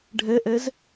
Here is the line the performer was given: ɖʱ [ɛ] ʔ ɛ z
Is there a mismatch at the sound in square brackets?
no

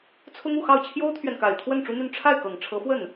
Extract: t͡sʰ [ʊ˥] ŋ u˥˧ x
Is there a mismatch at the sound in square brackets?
no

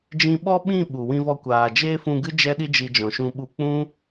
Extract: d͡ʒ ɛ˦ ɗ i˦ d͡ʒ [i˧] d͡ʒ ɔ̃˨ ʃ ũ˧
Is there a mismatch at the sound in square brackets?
no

